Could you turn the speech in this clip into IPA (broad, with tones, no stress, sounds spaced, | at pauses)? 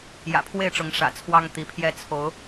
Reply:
j ä̰˨˩ pʰ w e˥˨ ɪ̯ ʈ͡ʂ ʊ˨˦ ŋ ʂ ä̰˨˩ t͡sʰ w ɑ˦ ŋ t̪ i˨˦ pʰ j ɛ˦ t͡sʰ o˨˦ ʊ̯